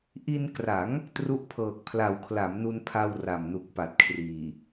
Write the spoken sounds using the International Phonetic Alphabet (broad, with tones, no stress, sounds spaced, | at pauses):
ʔ i˧ n k r a˩˦ ŋ | t r u˦˥ ʔ pʰ ɤː˨˩ k̚ pʰ l a˨˩ w kʰ l a˩˦ m n u˧ n pʰ a˧ w r a˨˩ m n u˨˩ k̚ p a˨˩ t̚ kʰ r iː˨˩